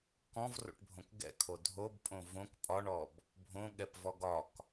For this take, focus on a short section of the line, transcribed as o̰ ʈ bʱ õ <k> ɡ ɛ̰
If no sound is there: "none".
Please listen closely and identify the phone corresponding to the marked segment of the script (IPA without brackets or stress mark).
k